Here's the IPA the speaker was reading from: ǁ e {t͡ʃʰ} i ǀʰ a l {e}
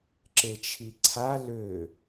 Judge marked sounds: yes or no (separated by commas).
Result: yes, no